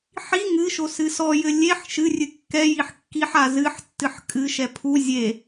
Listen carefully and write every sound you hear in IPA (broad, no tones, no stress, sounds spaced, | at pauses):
ħ i ŋ ɨ ʃ o s ɨ s ɔ j ɘ lʲ e ħ ʃ ɨ rʲ ɨ kː ɛ j i ħ kː i ħ a z ɨ ħ tː ɨ ħ kʼ ɨ ʃ ɛ pʰ u zʲ e